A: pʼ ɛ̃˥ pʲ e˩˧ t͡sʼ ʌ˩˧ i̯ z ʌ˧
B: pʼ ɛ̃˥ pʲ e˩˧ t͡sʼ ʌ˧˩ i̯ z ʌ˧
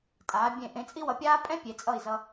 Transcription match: B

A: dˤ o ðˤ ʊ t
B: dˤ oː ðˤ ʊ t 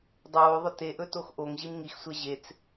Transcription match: B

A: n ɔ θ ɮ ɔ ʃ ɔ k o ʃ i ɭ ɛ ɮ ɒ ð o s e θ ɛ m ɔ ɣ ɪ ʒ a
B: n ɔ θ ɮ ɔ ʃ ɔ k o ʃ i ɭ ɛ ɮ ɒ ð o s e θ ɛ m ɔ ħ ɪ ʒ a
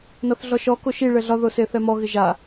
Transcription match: A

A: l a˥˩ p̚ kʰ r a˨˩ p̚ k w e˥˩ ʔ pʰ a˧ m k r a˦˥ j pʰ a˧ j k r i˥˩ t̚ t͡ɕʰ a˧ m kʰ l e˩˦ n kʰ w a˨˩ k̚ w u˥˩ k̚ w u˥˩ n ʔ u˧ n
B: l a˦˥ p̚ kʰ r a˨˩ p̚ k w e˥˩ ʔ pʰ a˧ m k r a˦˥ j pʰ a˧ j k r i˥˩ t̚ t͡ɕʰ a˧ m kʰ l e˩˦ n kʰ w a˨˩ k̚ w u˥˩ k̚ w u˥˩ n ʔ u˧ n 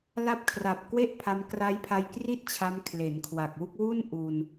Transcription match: B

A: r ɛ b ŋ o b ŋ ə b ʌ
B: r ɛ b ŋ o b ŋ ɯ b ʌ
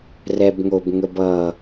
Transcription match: A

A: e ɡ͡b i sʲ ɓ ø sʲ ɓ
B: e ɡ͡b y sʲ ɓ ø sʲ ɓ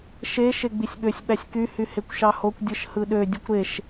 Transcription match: A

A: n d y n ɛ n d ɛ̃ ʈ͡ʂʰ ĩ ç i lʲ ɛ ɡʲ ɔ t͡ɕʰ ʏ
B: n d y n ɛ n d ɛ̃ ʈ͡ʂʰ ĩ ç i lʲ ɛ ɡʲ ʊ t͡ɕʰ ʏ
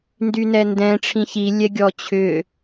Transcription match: A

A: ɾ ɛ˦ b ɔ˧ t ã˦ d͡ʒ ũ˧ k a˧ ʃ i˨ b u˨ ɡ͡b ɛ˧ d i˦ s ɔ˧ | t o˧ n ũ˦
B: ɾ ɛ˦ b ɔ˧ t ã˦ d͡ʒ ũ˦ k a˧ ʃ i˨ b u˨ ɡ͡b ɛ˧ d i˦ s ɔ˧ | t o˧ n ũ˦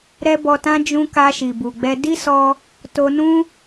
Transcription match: B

